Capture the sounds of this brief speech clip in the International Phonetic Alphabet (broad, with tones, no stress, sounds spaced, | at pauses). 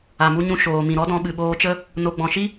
a˨ m u˧ ɲ ũ˧ ʃ oː˨ m ĩ˨ ɾ ɔ˦ d ɔ̃˧ ɓ ɨ˨ ɓ oː˧ t͡ʃ ə˦ | n o˧ ɡ͡b ɔ̃˨ ʃ i˦